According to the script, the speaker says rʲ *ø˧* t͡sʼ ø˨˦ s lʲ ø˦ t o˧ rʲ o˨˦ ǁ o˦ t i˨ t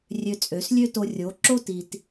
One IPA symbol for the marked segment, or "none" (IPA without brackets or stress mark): ø˧